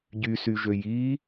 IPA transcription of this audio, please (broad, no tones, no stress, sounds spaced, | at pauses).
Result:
ɟ y s y ʒ ø j i